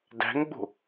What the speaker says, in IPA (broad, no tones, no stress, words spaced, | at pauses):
dæ̤ŋɡ͡bo̤